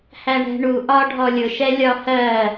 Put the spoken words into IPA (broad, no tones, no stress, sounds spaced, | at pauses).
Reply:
h æ ɳ ɛ̤ ɳ u ʔ ɒ ɖʱ ɔ lʲ ʊ ʃ ɛ lʲ ɒ h ɜ